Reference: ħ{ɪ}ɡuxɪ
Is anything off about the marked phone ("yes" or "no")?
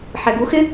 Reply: yes